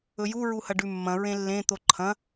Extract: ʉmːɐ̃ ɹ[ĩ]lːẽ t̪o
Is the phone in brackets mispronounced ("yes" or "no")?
yes